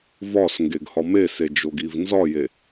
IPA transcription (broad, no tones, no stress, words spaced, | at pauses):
vɒs ŋɡeɡhɒmese d͡ʒoɡivnzɒje